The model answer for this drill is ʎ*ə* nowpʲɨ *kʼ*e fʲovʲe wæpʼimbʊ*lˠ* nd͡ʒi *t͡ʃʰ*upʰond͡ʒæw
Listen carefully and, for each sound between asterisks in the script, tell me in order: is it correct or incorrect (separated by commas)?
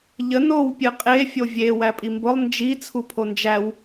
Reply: correct, incorrect, correct, incorrect